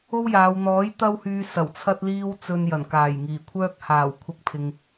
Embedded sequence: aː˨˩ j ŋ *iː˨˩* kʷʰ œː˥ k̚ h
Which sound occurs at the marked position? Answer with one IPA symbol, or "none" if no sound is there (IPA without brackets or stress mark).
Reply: iː˨˩